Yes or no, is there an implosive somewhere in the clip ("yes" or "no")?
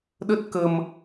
yes